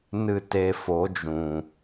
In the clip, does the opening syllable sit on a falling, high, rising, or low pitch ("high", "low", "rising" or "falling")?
falling